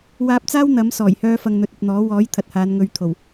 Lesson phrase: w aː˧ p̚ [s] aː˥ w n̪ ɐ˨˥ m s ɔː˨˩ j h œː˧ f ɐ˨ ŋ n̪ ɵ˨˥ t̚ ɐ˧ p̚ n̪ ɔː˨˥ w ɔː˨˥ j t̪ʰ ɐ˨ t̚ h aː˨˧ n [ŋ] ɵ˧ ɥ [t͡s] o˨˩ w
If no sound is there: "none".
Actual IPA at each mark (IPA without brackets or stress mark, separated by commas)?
t͡s, ŋ, t̪ʰ